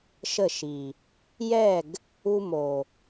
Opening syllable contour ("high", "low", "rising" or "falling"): falling